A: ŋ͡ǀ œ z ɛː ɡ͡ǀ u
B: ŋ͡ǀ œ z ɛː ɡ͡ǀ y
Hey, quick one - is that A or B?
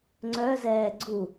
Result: A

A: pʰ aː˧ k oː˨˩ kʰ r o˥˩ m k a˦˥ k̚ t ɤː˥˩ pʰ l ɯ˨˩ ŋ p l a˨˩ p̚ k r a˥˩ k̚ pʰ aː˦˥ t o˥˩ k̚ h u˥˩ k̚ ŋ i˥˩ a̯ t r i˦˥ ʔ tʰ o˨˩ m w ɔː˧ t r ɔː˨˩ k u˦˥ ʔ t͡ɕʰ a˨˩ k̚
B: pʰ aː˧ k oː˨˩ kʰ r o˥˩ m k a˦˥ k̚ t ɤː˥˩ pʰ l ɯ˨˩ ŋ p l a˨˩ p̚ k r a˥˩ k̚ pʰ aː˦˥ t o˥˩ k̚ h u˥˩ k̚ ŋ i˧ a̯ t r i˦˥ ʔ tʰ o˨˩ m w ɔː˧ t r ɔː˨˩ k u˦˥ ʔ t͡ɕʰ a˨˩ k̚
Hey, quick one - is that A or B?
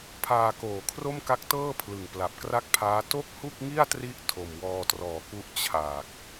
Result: A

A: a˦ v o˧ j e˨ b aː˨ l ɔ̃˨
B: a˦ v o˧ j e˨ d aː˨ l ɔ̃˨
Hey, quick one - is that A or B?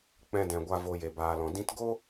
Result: A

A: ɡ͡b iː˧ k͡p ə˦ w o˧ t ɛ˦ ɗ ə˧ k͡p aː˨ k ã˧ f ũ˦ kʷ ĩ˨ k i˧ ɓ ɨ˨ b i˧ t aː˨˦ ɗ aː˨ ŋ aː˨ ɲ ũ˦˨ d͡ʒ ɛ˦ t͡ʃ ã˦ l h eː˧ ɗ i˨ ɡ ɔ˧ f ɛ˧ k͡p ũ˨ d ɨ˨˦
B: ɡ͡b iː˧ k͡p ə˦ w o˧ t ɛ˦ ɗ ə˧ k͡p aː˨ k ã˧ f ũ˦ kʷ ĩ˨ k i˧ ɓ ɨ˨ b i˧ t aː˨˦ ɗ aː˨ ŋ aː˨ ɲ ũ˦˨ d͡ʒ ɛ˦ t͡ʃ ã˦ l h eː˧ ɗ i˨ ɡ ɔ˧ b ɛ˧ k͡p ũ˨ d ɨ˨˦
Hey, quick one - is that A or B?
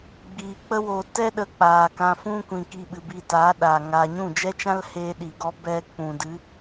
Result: B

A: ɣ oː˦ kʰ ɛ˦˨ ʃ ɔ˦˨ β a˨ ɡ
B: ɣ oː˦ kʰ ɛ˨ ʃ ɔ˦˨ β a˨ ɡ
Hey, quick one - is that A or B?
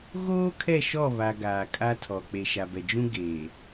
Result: A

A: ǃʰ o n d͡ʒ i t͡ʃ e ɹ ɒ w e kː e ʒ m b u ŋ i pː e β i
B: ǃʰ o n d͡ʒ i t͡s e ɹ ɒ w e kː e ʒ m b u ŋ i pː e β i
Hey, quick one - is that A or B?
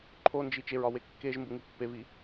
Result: A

